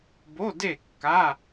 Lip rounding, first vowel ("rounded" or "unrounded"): rounded